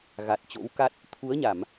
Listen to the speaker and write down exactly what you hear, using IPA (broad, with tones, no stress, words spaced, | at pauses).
ɣa˨˩t̚t͡ɕo̰˧˥wka˦˥t̚ | t̪ʰu˨˦ə̯ɲa˧˩˨m